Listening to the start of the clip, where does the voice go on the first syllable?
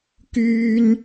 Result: high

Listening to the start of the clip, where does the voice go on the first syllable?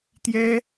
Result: high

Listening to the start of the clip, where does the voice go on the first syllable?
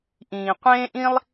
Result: low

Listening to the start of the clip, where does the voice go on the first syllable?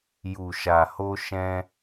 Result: low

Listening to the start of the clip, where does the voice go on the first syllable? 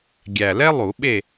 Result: low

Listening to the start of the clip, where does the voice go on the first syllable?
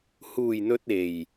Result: low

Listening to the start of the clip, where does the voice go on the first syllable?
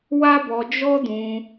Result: high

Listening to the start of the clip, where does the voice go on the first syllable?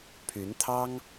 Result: rising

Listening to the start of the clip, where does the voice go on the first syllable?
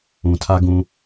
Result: low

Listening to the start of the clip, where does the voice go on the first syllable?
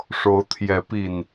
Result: rising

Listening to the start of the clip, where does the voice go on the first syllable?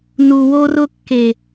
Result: low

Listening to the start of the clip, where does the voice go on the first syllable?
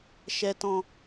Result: low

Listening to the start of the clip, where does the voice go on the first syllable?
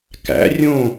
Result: rising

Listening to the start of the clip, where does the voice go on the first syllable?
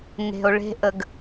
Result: low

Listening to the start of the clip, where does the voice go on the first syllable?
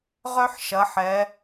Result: high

